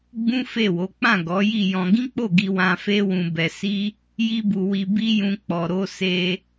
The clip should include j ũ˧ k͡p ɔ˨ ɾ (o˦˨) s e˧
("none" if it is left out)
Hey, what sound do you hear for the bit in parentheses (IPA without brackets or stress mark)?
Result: o˧